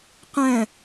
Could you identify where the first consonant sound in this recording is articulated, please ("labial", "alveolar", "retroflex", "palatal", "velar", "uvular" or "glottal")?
uvular